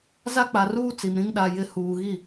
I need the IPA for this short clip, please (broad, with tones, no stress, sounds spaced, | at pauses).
z a˦ k͡p a˨ r uː˦ t͡s i˨ m ɾ ĩ˦ ŋ ɗ a˨ j ɪ˨ h uː˨ ɣ i˦˨